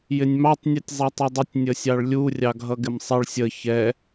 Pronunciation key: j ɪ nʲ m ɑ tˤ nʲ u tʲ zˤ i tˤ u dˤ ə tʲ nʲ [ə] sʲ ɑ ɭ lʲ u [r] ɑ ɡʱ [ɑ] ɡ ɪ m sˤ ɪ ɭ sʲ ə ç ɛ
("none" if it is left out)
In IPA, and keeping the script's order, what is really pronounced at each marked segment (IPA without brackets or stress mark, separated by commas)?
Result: ə, rʲ, ʌ